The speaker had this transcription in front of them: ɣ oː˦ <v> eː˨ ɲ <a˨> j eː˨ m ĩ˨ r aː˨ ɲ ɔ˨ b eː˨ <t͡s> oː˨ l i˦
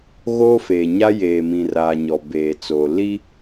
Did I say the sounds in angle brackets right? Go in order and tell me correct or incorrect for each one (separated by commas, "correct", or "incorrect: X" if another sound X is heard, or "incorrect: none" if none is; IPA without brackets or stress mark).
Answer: incorrect: f, incorrect: a˦, correct